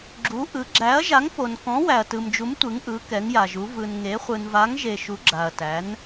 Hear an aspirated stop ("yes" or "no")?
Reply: no